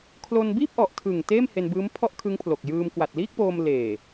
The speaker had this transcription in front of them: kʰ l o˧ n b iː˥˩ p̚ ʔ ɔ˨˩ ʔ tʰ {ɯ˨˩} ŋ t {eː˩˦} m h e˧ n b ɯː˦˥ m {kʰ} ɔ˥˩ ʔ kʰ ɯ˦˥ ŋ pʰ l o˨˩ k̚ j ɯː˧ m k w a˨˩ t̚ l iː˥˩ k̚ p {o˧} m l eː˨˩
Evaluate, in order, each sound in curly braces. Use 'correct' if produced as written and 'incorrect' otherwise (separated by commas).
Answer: correct, incorrect, incorrect, incorrect